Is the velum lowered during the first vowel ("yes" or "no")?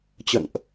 no